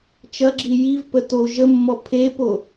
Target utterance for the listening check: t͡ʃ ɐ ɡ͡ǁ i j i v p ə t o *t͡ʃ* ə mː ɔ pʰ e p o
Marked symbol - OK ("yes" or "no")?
no